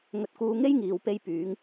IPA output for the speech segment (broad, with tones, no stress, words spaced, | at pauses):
ŋɵ˧t̚kuː˧ ŋe˥jŋiː˨w pe˧jpyː˨˧ŋ